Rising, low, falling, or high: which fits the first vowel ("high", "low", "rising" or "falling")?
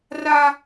high